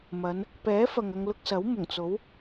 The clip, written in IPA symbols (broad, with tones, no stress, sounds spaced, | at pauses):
m ɐ˨˧ n | p ɛː˨˥ f ɐ˨ ŋ ɐ˧ ŋ l ʊ˧ k̚ s ɐ˨˥ w m ʊ˨˩ ŋ t͡s o˨˥ w